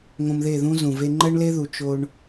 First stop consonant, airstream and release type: click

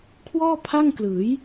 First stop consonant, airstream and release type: aspirated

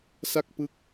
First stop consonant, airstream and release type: plain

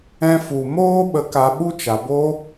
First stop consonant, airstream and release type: implosive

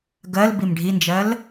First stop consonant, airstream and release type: plain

